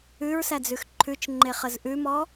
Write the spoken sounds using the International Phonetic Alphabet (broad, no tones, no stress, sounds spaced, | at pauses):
ʉ ɹ s æ d͡z ʉ x ǃʰ ʉ t͡ʃ ŋ͡ǃ e χ ə z ʔ ʉ m ɔ